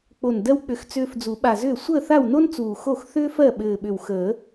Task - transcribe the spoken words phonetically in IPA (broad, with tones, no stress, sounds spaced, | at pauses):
k͡p o˨˩ n d ɜ˧ w k͡p ʏ˨˩˦ x t͡s ʏː˧ f d͡z u˨˩˦ ɓ a˨˩ z ʏː˥˩ sʷ əː˥˩ θ a˥˩ w n o˥ n t͡s uː˨˩ x o˥˩ x θ ʏː˥ f ɜ˥˩ ɓ ɘː˨˩ ɓ ʏ˨˩ w x əː˨˩˦